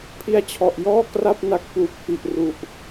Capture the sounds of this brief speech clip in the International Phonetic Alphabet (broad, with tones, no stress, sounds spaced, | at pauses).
pʰ i˦˥ a̯ t͡ɕʰ ɔ˨˩ ʔ j ɔː˥˩ k r a˥˩ p̚ n a˦˥ k̚ p uː˨˩ p̚ f i˨˩ ʔ r u˨˩ ʔ